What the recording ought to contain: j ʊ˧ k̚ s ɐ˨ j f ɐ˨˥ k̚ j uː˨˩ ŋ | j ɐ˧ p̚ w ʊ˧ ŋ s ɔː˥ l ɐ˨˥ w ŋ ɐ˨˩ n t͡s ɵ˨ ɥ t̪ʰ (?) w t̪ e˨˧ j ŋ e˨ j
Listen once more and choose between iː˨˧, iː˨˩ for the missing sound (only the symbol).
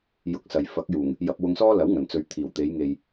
iː˨˩